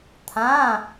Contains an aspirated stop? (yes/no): yes